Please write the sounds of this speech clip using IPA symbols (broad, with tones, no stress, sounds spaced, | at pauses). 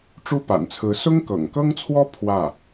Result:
ʈ͡ʂ u˥ p a̰˨˩ n t͡sʰ ɹ̩˧˥ s ʊ˥ ŋ k ɤ̰˨˩ ŋ k ɤ˥ ŋ t͡sʰ w ɔ˥ pʰ w ä˥˩